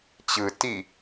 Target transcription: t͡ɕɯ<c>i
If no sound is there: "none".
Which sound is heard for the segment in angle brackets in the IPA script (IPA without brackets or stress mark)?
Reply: t